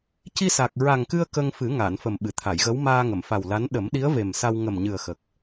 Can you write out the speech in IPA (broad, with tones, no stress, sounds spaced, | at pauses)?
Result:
c i˧ s a˨˩ k̚ ɹ a˨˩ ŋ k ɨ˧ ə̯ k ə˧ ŋ f ɨ˨˩˦ ŋ a˨˩˨ n f ə˨˩ m ɓ ɨ˨˩˨ t̪ʰ a˨˩˨ j ɣ ə˧˥ w m aː˧ ŋ ə˨˩˨ m f a˨˩ w l a˧˥ n ɗ ə˨˩˦ m ɗ i˧˥ ə̯ v e˨˩ m s a˧ w ŋ ə˨˩ m ɲ ɨ˨˩ ə̯ x ə˨˩ k̚